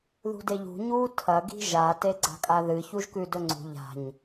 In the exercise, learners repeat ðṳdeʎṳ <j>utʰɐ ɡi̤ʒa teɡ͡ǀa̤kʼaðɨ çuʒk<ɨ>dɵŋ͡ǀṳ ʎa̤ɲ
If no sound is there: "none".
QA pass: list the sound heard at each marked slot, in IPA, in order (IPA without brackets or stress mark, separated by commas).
ɲ, ʉ